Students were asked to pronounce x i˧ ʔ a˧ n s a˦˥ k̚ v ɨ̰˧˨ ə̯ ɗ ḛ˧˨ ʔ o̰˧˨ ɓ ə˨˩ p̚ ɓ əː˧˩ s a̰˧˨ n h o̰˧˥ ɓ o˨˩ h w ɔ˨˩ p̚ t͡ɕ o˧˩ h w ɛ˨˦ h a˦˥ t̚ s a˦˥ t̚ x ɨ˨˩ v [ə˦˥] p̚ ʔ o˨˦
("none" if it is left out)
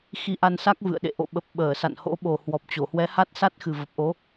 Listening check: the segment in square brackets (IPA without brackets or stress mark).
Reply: ə˨˩